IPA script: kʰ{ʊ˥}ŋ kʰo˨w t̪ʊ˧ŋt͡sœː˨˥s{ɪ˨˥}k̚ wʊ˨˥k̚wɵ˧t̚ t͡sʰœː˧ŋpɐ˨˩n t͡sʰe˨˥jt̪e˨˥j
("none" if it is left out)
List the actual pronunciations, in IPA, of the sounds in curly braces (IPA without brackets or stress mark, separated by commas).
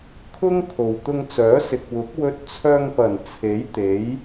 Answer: ʊ˥, ɪ˨